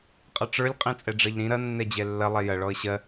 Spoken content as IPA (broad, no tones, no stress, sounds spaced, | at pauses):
qʼ ʌ ʈ͡ʂ ə˞ lʲ qʼ ĩ t͡sʼ ɛ ɖ͡ʐ ɜ ʎ ɾ ĩ ɾ ɐ nː ɛ d͡ʑ ɛ lː ɐ lˠ ɛ j ɐ ɭ ɔ ə̯ ɕ ɜ